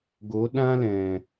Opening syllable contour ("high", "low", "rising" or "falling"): rising